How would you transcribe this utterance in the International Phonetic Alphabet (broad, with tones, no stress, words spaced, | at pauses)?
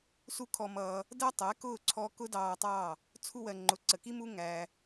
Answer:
su˦kʰɔ˧mʌː˧ | dɜ˦tˤɛ˨˦kʊː˦˨ ǀʰɔ˦ kʊ˦dɑː˧tˤɑ˦˨ | t͡sʰu˧wɜ˨ŋ͡ǃʊ˨ ǀə˨ki˦mu˦ ŋæ˧